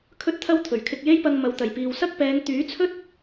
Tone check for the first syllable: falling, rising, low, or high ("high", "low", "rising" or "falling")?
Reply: high